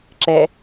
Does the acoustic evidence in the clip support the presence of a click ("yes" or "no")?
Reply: yes